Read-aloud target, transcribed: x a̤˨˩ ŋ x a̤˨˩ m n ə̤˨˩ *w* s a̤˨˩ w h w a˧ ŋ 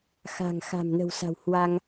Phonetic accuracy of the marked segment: correct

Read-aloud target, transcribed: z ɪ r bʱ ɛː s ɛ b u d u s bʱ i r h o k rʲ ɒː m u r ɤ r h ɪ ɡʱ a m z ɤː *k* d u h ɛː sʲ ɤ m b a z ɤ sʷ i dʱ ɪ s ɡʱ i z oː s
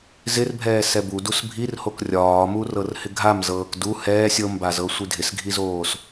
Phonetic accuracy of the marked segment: correct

